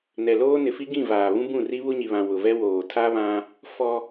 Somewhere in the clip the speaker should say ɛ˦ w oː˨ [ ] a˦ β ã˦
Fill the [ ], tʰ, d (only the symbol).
tʰ